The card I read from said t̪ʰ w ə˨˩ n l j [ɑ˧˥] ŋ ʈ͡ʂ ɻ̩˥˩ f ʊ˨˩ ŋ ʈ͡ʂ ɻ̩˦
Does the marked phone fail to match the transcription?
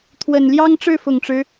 yes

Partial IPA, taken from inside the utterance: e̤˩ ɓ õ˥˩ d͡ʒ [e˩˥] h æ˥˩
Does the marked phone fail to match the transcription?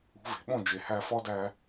yes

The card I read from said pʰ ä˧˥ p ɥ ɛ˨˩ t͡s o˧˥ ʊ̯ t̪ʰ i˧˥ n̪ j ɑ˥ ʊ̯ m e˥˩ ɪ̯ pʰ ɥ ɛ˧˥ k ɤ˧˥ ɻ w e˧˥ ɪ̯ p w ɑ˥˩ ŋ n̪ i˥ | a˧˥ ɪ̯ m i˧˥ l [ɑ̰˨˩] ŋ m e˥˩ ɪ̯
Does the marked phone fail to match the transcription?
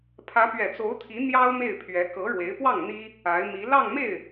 yes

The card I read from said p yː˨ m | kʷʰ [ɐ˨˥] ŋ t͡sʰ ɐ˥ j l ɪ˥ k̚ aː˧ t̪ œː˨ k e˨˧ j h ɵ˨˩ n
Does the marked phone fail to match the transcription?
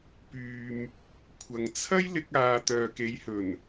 yes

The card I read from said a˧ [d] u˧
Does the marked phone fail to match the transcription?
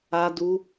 no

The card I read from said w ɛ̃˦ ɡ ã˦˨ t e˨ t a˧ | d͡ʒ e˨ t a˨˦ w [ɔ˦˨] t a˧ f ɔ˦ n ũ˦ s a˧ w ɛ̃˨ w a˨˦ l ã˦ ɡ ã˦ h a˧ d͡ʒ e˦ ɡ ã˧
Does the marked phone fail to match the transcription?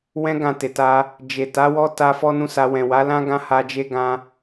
yes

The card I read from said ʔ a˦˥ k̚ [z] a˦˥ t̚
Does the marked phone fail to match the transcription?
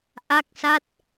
yes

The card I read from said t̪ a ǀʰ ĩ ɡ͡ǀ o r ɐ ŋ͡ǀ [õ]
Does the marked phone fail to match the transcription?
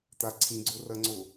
yes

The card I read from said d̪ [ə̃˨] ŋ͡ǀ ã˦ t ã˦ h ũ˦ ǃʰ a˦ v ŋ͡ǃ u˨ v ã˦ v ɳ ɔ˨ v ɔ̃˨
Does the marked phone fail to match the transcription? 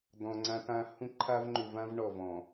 yes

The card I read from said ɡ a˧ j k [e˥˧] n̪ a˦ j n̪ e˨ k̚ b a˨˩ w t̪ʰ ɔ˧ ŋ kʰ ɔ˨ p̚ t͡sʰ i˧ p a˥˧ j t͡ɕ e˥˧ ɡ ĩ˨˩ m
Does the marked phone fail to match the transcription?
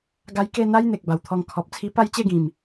no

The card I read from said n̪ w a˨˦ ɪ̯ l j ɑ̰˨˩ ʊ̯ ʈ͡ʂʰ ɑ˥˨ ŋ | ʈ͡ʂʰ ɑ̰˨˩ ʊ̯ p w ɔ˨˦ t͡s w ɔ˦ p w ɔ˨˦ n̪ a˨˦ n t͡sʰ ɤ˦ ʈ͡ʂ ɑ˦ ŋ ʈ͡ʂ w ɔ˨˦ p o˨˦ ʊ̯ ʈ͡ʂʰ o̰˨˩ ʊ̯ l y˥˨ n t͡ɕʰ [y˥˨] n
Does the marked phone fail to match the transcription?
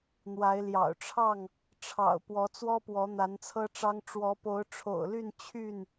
no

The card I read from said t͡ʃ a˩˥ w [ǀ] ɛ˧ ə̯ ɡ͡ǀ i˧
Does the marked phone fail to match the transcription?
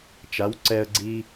no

